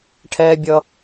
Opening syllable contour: high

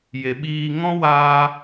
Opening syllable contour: low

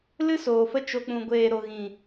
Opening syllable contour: high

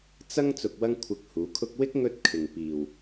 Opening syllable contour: high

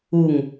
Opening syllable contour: falling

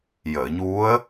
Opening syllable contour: low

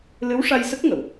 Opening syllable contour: rising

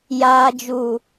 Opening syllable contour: low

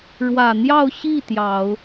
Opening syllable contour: low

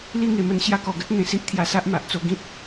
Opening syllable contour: falling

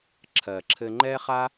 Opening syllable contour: low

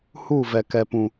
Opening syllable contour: falling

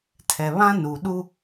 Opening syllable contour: low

